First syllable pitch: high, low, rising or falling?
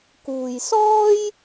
low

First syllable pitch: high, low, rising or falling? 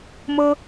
high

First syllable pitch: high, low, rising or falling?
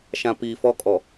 low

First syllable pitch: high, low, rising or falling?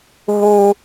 high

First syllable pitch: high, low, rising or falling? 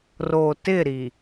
low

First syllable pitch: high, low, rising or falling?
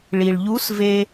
low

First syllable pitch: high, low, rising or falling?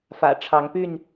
low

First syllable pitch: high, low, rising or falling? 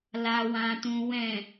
low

